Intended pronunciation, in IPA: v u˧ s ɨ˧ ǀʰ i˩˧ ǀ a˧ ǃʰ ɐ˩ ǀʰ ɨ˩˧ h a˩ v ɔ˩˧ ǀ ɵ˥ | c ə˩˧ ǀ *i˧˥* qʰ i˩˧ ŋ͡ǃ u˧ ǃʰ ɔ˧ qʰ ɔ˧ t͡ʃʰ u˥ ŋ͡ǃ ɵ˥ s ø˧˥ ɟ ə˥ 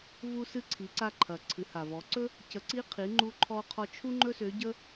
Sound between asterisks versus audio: correct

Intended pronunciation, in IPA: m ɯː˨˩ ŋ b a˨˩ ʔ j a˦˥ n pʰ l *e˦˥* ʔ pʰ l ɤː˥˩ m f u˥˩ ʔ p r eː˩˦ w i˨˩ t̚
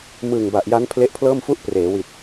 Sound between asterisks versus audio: correct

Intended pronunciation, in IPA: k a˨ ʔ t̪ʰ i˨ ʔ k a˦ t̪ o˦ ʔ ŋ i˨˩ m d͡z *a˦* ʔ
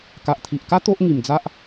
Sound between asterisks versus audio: correct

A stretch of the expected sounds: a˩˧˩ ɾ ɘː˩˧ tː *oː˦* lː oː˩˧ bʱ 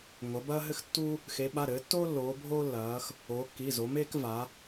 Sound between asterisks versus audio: correct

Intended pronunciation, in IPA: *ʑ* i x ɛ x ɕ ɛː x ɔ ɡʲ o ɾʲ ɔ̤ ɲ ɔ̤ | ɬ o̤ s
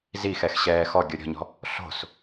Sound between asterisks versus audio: incorrect: z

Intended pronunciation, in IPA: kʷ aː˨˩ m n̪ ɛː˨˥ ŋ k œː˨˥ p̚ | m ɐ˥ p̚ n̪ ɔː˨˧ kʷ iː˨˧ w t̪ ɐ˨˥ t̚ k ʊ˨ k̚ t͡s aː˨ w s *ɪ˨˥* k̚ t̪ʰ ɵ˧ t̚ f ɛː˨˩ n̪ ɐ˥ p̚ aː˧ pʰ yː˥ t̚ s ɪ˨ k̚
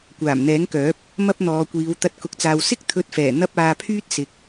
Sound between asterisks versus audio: incorrect: ɪ˥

